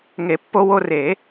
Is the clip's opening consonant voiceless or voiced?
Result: voiced